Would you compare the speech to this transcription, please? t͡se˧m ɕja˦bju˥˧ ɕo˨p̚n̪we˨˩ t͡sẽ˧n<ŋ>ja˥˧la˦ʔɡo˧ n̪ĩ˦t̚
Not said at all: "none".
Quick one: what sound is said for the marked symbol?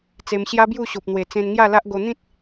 ŋ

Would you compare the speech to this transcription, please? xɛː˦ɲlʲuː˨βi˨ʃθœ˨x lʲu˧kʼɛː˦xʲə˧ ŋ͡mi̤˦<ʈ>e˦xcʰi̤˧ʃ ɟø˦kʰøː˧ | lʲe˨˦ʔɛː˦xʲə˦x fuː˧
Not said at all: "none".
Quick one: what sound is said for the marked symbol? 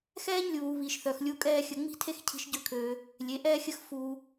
tʰ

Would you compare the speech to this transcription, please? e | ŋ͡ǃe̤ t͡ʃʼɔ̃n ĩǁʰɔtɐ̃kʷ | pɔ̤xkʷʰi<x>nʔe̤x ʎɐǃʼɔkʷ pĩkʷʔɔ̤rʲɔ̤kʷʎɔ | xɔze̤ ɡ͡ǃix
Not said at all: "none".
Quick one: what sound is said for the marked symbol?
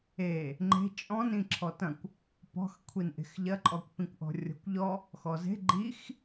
none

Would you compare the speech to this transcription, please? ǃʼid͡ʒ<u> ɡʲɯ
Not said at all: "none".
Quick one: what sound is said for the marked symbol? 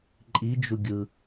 u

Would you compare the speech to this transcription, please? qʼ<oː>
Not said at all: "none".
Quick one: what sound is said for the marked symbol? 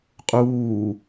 uː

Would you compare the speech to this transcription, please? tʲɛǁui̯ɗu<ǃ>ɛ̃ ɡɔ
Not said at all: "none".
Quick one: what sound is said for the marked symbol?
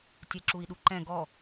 ǃ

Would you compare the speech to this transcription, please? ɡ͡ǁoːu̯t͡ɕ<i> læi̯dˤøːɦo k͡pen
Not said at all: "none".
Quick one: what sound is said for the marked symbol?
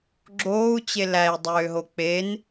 e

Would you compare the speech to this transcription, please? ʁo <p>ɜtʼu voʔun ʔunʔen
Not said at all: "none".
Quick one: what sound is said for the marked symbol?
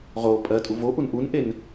pʼ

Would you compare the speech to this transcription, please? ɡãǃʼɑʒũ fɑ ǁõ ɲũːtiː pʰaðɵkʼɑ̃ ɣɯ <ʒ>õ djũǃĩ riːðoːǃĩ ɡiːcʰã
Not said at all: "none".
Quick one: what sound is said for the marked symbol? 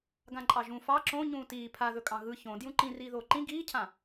ç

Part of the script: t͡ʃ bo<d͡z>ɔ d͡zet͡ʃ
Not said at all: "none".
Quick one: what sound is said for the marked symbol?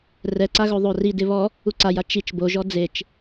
ʒ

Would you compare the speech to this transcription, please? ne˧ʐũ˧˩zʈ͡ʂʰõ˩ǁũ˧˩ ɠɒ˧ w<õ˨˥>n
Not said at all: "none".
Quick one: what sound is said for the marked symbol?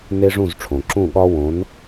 õ˨˥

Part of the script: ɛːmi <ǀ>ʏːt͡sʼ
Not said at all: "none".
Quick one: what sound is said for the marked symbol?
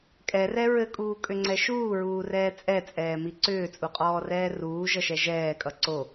ǀ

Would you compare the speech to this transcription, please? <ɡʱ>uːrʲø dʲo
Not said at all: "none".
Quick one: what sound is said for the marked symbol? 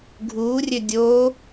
ɡʱ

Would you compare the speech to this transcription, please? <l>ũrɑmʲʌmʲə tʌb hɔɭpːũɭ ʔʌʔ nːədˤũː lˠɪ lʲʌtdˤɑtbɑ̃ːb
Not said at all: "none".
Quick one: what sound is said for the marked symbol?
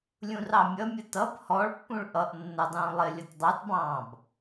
lʲ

